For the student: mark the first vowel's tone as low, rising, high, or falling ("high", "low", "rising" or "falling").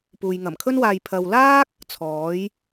low